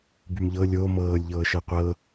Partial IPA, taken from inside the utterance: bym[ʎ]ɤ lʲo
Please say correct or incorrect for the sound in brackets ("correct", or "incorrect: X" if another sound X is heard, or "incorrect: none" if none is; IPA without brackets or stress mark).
correct